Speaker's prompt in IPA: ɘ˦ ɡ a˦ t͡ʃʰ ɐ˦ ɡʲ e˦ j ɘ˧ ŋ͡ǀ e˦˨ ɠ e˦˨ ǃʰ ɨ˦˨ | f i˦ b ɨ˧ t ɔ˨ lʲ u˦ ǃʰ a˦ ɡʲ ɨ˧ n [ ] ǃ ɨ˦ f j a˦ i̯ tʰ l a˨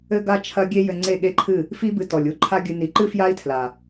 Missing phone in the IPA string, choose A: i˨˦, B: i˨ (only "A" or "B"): A